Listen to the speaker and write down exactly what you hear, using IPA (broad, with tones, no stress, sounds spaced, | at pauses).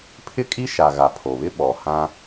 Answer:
pʰ ɪ˦ kʼ i˦ ʃ a˨ ɣ a˨ pʰ o˨ β ɪ˦ ɓ ɔ˨ h ã˦